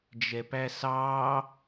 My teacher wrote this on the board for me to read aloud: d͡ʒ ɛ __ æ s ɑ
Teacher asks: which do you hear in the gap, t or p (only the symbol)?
p